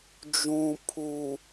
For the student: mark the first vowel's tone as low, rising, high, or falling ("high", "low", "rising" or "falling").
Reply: low